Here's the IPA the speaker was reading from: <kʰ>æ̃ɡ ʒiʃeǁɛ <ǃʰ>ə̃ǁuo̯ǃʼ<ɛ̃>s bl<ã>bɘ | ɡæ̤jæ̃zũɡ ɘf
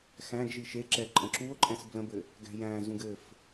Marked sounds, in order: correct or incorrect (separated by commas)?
incorrect, incorrect, correct, incorrect